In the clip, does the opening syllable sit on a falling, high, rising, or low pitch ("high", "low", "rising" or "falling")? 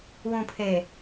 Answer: low